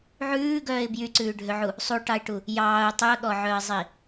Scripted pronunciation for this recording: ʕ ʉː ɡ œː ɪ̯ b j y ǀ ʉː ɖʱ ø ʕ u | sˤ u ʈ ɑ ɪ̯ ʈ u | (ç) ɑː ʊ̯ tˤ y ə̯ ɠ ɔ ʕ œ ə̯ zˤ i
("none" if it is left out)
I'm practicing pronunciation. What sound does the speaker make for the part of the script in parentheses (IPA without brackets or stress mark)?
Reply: j